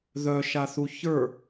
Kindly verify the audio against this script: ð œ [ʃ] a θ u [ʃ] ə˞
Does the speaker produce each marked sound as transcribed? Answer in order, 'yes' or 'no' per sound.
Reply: yes, no

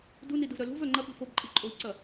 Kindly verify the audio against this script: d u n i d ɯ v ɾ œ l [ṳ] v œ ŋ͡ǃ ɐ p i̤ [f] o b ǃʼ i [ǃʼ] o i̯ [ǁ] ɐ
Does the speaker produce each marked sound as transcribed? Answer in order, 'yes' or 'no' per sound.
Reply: yes, yes, yes, no

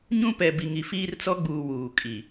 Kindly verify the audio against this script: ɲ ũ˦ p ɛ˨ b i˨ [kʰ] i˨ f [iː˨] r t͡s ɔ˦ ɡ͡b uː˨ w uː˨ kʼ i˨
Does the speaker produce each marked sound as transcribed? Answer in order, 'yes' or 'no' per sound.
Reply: no, no

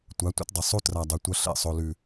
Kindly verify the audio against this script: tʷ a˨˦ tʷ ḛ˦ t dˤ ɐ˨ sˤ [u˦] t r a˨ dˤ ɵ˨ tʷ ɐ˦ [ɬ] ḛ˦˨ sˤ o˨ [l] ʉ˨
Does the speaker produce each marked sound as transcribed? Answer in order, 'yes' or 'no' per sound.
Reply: yes, yes, yes

